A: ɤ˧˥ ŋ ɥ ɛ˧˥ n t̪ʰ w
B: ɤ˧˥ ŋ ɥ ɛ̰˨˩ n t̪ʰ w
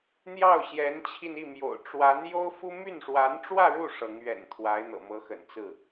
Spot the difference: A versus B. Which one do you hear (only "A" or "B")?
B